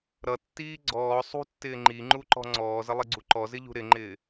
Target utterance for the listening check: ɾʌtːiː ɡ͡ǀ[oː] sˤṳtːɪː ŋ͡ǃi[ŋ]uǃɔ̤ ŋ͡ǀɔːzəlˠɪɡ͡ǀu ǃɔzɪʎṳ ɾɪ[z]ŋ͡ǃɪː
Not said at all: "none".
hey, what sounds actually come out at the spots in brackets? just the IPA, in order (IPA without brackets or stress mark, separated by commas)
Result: ɔː, ŋ͡ǃ, none